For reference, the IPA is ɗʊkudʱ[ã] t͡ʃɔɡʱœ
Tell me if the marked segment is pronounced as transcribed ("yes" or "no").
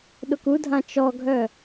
yes